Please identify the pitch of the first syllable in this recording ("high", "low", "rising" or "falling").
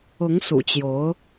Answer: rising